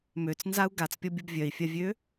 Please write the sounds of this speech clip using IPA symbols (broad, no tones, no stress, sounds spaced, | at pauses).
m ø t͡s n z a u̯ ɡ a t͡s pʲ ɔ bʲ u b vʲ œ i̯ fʲ a vʲ ø